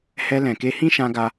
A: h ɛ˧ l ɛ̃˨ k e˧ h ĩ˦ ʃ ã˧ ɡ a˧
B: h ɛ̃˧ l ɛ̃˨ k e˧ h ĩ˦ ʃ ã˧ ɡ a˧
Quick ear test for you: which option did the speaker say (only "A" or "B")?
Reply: A